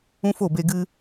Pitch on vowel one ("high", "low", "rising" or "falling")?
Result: high